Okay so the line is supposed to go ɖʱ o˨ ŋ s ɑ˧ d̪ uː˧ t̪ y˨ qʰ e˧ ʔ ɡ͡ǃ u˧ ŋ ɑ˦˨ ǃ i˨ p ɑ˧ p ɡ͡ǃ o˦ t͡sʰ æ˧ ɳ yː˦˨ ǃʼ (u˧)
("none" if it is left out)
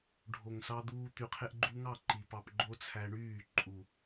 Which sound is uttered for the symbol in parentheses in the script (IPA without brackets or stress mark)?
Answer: u˨